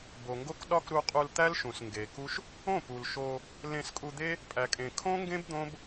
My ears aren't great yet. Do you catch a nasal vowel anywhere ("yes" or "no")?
yes